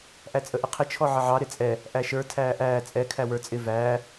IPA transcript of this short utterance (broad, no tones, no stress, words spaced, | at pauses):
ʔæt͡sʼəʔɪqʰɪ t͡ʃʰɔʕəʕɑ ɾɪt͡sʼɛ | ʔæʃə˞ tʰæːʔæː t͡sʼɛ kʰæwə˞t͡sʼɪ væː